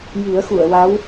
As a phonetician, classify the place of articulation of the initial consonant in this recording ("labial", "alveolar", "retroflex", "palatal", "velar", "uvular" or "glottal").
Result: palatal